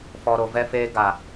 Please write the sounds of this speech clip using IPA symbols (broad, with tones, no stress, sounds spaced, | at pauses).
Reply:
f ɔ˨ ɾ o˨ v ɛ˦ f eː˦ ɡ a˨